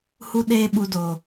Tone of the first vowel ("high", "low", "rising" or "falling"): high